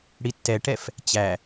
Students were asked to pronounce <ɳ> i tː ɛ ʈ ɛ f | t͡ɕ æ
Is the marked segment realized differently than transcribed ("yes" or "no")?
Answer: yes